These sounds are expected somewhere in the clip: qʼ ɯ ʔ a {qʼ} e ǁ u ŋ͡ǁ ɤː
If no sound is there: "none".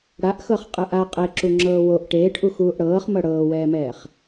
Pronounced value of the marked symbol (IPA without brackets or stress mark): qʼ